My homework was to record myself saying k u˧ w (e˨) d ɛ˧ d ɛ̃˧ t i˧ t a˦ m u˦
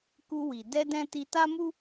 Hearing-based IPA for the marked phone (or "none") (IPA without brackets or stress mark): i˨